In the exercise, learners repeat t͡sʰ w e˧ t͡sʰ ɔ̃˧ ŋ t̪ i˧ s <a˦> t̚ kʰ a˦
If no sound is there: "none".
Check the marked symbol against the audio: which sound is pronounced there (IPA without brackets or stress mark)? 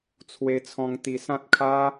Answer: ã˦